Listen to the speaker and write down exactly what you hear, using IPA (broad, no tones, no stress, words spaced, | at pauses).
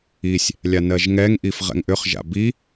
isʲ | lʲanɜʒŋɛŋ ʔifʁɛ̰ŋʔʏχ ʒa̰bi